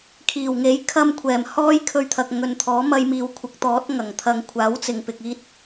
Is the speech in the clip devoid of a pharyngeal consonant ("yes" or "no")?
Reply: yes